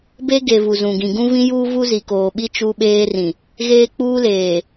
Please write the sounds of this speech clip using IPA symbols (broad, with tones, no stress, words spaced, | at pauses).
be˦ ɡe˨ vu˨zũ˨ɡĩ˨ ɡũ˦vĩ˦juː˦ vu˦zi˨koː˨ɓi˦ t͡ʃu˦ɓeː˦rĩ˨ | ɣeː˦k͡puː˦leː˨